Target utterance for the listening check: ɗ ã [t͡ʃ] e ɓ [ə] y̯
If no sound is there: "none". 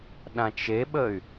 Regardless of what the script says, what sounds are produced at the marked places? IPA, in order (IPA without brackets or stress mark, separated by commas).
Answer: t͡ʃ, ə